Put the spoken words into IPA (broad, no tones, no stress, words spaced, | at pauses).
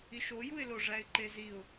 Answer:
iʃojuɪ̯lo ʐæɪ̯ǃeziʊ̯